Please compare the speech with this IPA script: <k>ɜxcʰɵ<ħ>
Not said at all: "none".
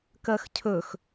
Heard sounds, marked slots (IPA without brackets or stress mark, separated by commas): k, x